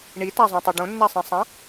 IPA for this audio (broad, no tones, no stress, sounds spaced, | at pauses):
ɳ i t a zˤ õ tˤ u ɖ õ nː a sˤ ĩ sˤ ã